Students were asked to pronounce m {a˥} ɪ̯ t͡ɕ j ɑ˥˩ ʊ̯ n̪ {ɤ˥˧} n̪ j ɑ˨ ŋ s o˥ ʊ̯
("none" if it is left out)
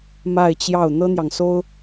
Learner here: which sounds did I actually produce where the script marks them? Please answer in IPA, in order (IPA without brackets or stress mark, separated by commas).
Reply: a˥˧, ɤ˥